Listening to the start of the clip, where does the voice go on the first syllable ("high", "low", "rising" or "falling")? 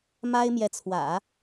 high